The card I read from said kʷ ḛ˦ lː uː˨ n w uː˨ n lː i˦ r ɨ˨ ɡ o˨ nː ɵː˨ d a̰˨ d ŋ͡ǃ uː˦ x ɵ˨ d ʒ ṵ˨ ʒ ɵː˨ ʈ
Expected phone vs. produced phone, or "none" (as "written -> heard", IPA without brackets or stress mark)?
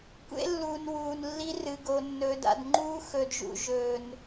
ʈ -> n